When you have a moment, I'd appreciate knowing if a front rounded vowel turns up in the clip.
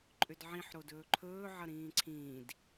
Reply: yes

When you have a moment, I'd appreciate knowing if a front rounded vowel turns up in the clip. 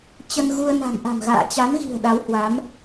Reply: no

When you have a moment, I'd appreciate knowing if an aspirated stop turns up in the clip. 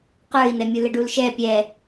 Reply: no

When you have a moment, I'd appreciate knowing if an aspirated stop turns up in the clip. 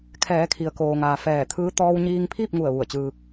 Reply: yes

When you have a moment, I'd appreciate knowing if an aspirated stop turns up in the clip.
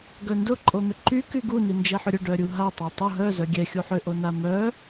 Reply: no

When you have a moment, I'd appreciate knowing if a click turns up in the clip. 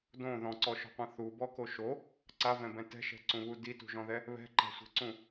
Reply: yes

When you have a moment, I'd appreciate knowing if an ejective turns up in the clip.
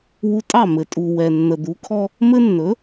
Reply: yes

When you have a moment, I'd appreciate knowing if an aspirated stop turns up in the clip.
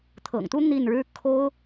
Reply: yes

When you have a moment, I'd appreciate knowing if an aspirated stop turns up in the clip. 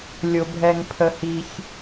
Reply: yes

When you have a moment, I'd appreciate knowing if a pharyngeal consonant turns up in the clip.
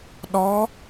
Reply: no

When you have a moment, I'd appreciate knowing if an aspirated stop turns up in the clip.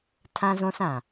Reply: yes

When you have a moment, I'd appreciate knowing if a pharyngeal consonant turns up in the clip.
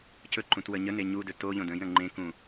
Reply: no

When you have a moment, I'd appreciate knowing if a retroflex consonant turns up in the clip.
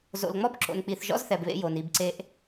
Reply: no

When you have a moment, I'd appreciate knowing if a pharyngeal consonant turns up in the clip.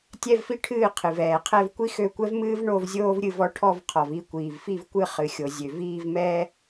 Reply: no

